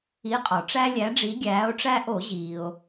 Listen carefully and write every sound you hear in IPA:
i˨˦ qʼ ɒ˩ ʈ͡ʂ æ˦ lʲ æ˨˦ ɖ͡ʐ i˨˦ ɡʲ æː˨˦ o̯ ʈ͡ʂ æ˦ ʔ o˧˩˧ ʑ iː˩ o̯

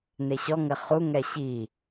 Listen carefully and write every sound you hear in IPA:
n̪ e ɕ ɔ ŋ ɘ χ u ŋ ɛ ɕ i

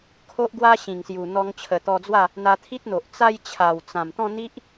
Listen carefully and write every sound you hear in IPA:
kʰ o˦ ʔ ɡ w a˦ ɕ ĩ˨˩ ŋ s j u˨˩ n̪ ɔ˧ ŋ t͡ɕʰ ə˨˩ t̪ ɔ˧ d͡z w a˥˧ | n̪ a˧ t̪ʰ i˦ t̚ n̪ o˨ ʔ t͡s a˥˧ j t͡ɕʰ a˨˩ w t͡s ã˨˩ m t̪ ɔ̃˥˧ n̪ i˦ ʔ

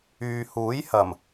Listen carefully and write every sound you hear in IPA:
yː˨ h uː˨˥ j h ɐ˨˩ m

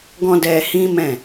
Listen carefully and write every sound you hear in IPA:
ɡ ɔ̃˦ d ɛ˧ h ĩ˦ m ɛ̃˦˨

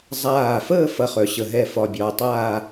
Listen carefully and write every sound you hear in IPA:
zˤ aː˧˩ f əː˥˧ f ɐ˥˧ χ œ˩˧ ɕ ə˧˩ ɦ ɛ˥˧ f ɒ˧˩ bʲ ɒː˧ tˤ aː˥˧

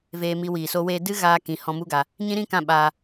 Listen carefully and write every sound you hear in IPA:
v eː˧ m i˧ w iː˨ s o˧ w eː˧ d ɨ˦ ɣ aː˧ k ĩ˨ h ɔ̃˧ m u˦ ɡ a˧ | ɲ ĩ˦ ɾ ĩ˦ k ã˦˨ ɓ aː˧

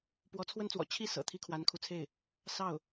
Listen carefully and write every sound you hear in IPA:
p w ɔ˧˥ t͡sʰ w ə˥ n t͡s w ɔ̰˨˩ t͡ɕʰ i˥˩ s ɤ̰˨˩ t̪ʰ i˥ kʰ w a˧˥ n kʰ u˧˥ t͡sʰ e˥˩ ɪ̯ | s ɑ˥˩ ʊ̯

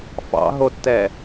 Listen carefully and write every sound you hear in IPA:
f ɑ̰ ɦ o tː ɛ

